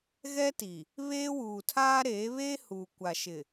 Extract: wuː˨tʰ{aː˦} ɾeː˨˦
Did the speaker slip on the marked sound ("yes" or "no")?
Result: no